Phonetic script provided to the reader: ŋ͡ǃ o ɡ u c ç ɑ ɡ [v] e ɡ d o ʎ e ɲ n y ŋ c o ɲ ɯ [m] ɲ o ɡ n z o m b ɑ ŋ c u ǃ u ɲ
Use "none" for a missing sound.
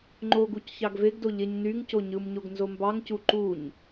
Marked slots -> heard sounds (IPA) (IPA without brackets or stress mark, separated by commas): v, m